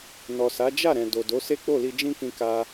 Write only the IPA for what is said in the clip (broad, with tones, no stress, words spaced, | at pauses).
nɔ˨sa˨˦ d͡ʒa˦˨ɾɛ̃˨ do˨do˨˦ se˦k͡po˦˨li˧ d͡ʒĩ˦kĩ˧ka˧